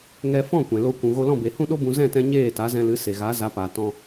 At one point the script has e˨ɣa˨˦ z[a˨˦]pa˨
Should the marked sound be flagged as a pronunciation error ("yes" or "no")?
no